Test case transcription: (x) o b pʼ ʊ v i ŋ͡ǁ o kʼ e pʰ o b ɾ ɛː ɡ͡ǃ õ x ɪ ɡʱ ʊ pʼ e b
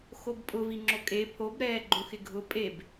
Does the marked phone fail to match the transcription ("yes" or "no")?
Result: no